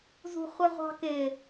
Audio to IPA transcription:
z ṳ χʷ ə ʁʷ ɑ̤ k ɪ

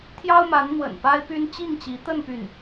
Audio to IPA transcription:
t̪ʰ j ɑ˥ ʊ̯ m a˧˥ n n̪ w ə̰˨˩ n p a˥ ɪ̯ p y˥ n t͡ɕ i˥˩ ŋ t͡ɕ i˧˥ t̪ ə˥˧ n p y˥˩ n

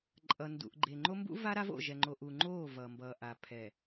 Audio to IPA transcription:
ǃʼ ʌ˨ n d ṵ˨ ʔ ɡ͡ǃ e˨ ŋ͡ǃ o˦ m b ṵ˦ v a˦ ɾ a˦ v o̰˦˨ ʒ ɛ˨ ŋ͡ǃ o˨ ʔ u˨ ŋ͡ǃ oː˦˨ v ʌ˨ m b ʌː˨ ʔ a˨ pʰ ɛ˨

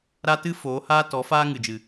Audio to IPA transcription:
ɾ a˦ t ɨ˦ f oː˨˦ h aː˦ t ɔ˨˦ f aː˦ ŋ ɨ˨ d͡ʒ ɨ˨

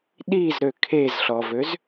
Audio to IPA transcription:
ɗ i z ɾ ø kʰ e z ɬ ɔ v ø z

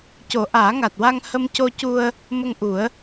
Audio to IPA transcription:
c o˨˩˦ ʔ aː˨˩˦ ŋ a˨˩ t̚ w a˧ ŋ h ə˧ m c o˧ c u˧ ə̯ | m ə˧ ŋ ʔ u˨˩˦ ə̯

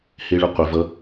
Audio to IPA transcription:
h e ɭ ə qʷ ə v ʌ

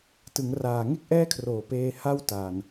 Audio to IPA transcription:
t ɯ˩˦ ŋ r aː˨˩ ŋ e˥˩ k̚ ʔ ɛː˥˩ kʰ r oː˨˩ p eː˧ h a˥˩ w t a˨˩ n

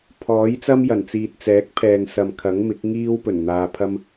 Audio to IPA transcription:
pʰ ɔː˨˥ j t͡s ɐ˥ m j ɐ˨˩ n t͡s iː˨ t̚ t͡s ɛː˨˥ k̚ pʰ ɛː˨ ŋ s ɐ˨ m kʰ ɐ˨˥ ŋ m ɪ˨˥ k̚ ŋ iː˥ w p ɵ˨˩ n n̪ aː˧ pʰ ɐ˥ m

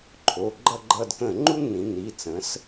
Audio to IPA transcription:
ǃʰ o˩˧˩ ɡ͡ǃ ʌ˦˨ ɡ͡ǃ ʌ˦˨ d k ə̃˧˩˧ ŋ͡ǃ u˥ nː ĩ˩˧ nː i˩˧˩ t͡s ə̃˩˥ s

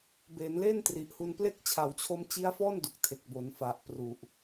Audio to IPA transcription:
b eː˩˦ n l e˥˩ n t r i˨˩ ʔ h u˧ n p l e˥˩ k̚ t͡ɕʰ a˩˦ w t͡ɕʰ o˧ m t͡ɕ i˦˥ a̯ f ɔː˥˩ n d u˨˩ k̚ tʰ e˨˩ k̚ b o˩˦ n f a˨˩ ʔ p r u˨˩ ʔ

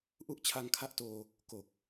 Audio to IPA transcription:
ʔ u˥˩ ʔ t͡ɕʰ a˧ ŋ kʰ a˦˥ ʔ t oː˧ | k o˨˩ k̚

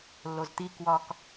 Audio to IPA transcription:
lː o z t̪ i k w ɒ k

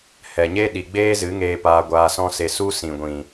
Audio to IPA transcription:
h ɛ˨ ɲ e˦ ɗ i˨ ɡ͡b eː˦ z ɨ˨˦ ŋ eː˧ p aː˧ ɡʷ aː˧ s ɔ̃˦ s e˧ s u˦ s ĩ˨ ɡʷ ĩ˨

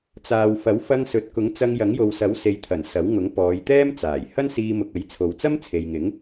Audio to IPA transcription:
t͡s aː˨ w f ɐ˨˥ w f ɐ˧ ŋ s ɵ˨ t̚ k ʊ˨˥ ŋ t͡s ɐ˧ ŋ j ɐ˨˥ ŋ j o˨ w s ɐ˨˥ w s e˨ j t̪ʰ ɐ˨˩ n s ɐ˨˥ w ŋ ʊ˨˥ ŋ p ɔː˨˧ j t̪ ɛː˥ m t͡s aː˨˩ j h ɐ˥ n s iː˧ m ʊ˨ k̚ ɐ˨˥ j t͡sʰ o˨ w t͡s ɐ˥ m t͡sʰ e˨ j ŋ ɪ˨˥ ŋ

